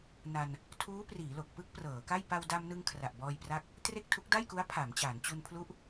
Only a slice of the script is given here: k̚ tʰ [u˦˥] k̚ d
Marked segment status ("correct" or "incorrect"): correct